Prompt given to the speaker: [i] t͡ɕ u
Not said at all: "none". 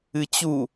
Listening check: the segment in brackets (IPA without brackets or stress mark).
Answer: ɨ